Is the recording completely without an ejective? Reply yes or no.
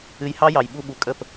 no